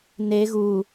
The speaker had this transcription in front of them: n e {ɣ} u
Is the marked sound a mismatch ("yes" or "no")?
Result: no